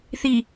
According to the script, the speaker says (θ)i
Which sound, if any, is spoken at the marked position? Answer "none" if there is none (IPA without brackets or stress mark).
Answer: θ